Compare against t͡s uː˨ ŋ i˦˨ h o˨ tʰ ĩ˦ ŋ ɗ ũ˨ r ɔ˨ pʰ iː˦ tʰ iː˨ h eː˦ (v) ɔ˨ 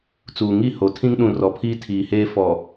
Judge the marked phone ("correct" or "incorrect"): incorrect